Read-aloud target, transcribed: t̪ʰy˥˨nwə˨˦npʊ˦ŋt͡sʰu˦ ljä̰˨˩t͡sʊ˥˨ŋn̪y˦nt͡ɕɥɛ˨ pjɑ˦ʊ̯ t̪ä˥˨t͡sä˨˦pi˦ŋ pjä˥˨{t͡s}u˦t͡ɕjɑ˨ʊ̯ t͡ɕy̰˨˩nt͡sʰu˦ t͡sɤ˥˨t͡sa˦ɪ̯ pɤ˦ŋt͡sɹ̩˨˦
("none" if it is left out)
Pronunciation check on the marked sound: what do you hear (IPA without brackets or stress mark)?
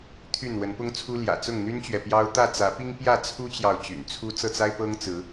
t͡sʰ